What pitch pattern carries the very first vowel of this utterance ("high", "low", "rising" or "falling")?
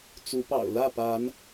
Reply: rising